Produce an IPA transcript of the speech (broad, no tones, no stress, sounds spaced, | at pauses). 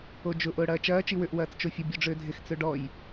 o d͡ʒ ʊ ʔ ʊː ɽ ɐː t͡ʃ ɐː t͡ʃ i w ʏ ʔ w ɐː t͡s t͡ʃ o fʲ ə bʲ ø ɖ͡ʐ ʏː dʱ ɪ x t͡s ø ɖ ɔ j